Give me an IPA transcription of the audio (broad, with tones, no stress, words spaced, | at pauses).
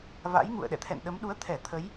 va̰˧˥jŋṵ˧˨ə̯ ɗɛ̰˧˨t̪ʰɛ̰˧˨nɗə˨˦m ɗu˨˦ə̯t̪ʰɛ˧˩ t̪ʰə˨˦j